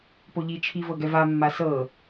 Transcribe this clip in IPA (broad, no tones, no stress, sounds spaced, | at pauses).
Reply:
p o ʎ i t͡ʃʰ i v ɤ ɡ ɛ v a mː a s ɤ